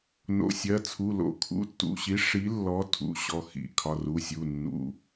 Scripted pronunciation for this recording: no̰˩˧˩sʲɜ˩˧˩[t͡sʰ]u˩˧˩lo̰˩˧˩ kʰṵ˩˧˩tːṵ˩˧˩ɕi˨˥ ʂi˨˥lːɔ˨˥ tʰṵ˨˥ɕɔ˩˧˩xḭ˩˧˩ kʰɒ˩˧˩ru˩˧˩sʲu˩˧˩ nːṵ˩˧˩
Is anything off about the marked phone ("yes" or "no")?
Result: no